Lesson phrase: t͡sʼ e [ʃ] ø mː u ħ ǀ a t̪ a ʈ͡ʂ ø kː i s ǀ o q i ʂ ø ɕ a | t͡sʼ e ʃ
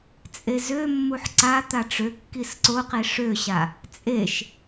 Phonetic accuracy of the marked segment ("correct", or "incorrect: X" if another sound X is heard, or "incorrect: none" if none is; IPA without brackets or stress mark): incorrect: z